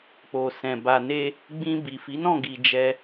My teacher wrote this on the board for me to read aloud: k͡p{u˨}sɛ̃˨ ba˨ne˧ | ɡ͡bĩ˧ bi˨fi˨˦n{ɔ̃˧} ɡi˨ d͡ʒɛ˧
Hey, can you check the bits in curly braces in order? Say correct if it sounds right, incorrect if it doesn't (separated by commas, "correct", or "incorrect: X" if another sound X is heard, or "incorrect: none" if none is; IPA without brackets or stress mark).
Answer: incorrect: o˨, incorrect: ɔ̃˦˨